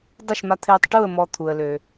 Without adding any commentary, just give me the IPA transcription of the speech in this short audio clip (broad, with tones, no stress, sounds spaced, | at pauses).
dˤ ə˦˨ ʃ m a˧ t̪ʰ ɪː˧ tˤ ʈ u˦˨ ə̯ m ɔ˧ t̪ʰ u˧ ə̯ l ø˧